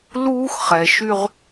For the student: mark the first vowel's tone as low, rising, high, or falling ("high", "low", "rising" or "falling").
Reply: high